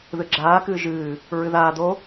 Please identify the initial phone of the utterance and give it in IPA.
ð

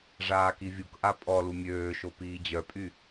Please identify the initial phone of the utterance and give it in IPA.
ʐ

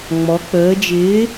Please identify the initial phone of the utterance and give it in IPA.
ŋ͡m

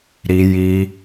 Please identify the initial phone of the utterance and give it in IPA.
ɾ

